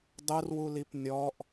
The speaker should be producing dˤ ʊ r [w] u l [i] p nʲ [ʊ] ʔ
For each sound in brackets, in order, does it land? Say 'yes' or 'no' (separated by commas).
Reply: yes, yes, no